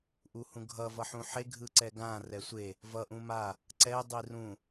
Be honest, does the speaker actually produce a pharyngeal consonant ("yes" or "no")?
yes